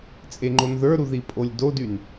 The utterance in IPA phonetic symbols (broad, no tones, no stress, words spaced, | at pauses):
t͡sʼeŋ͡ǃonðə˞ɾu ðipʼolʲdodyn